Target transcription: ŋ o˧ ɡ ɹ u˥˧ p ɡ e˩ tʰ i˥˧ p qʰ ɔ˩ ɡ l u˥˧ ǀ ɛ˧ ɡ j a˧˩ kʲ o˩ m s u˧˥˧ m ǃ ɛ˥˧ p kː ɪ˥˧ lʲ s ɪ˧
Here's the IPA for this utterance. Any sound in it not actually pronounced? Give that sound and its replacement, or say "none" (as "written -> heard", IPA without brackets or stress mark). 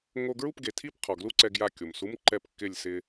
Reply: none